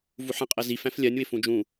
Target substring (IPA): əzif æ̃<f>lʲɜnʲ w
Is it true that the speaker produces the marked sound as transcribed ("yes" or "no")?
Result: yes